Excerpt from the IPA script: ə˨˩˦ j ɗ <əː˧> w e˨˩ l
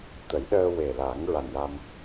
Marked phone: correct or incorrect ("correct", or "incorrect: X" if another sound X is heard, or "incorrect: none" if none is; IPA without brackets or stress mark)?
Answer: correct